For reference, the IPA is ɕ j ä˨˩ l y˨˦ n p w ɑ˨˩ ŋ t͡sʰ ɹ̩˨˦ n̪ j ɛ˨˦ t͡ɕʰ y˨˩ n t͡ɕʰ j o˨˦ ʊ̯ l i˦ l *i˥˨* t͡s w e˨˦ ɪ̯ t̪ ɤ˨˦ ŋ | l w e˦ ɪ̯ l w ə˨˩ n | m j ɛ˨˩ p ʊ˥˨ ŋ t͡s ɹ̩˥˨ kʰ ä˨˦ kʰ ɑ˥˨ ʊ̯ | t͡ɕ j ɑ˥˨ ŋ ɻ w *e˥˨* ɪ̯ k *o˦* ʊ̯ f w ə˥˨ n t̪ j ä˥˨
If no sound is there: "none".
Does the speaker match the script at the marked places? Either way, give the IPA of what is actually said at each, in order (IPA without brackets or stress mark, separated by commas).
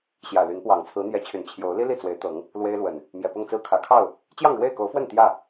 i˥˨, e˥˨, o˨˦